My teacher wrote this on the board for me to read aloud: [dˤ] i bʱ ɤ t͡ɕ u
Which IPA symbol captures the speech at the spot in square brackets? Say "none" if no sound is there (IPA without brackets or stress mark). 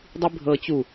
dˤ